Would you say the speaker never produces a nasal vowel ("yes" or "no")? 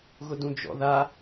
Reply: no